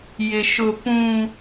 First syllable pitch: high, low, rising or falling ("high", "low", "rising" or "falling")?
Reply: high